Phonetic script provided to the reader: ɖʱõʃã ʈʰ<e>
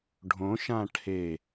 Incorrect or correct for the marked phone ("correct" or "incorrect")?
correct